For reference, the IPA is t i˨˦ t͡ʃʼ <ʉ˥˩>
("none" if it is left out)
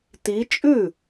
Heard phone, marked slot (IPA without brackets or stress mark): ʉ˥˩